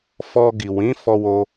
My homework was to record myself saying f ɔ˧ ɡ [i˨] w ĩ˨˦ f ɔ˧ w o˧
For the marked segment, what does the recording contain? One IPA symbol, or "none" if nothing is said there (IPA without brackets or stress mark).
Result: i˨